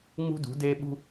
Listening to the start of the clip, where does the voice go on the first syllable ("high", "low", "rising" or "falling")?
high